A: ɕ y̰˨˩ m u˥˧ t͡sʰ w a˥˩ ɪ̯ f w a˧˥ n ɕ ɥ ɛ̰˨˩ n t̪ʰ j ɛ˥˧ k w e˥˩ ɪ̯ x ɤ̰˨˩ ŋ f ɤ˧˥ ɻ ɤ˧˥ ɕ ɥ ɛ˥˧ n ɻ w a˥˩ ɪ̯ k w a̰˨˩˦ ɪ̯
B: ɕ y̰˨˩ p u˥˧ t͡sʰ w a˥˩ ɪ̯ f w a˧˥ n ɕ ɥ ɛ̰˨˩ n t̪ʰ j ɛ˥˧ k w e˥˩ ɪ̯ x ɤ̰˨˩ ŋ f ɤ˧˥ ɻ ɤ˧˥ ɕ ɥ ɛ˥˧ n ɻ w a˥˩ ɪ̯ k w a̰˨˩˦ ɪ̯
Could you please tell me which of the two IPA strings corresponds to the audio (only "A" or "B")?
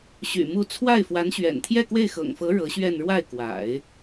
A